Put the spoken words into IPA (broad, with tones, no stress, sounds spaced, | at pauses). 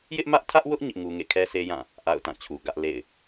j ɪ˦ ʔ m ä˦ ʔ tʰ ä˦ ʔ w ʊ˦ ʔ ɲ ɪ˦ ʔ ŋ u˦ ŋ ḛ˦˨ kʰ ɛ˦ sʰ e˦ j ã˦˨ | ʔ a̰˦˨ ʊ̯ t ã˦˨ t͡ɕʰ u˨ ɡ ä˦ ʔ l ḛ˦˨ ɪ̯